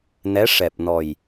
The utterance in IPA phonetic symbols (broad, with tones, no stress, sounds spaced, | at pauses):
n ɛ˧˥ ʂ ɛ˨˩ p̚ n ɔ˨˩ j